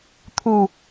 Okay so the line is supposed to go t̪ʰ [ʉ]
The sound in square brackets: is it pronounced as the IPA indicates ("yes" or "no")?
no